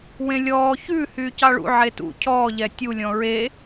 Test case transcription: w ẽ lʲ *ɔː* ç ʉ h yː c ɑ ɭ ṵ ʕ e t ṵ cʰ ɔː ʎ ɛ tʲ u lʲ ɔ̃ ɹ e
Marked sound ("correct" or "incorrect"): correct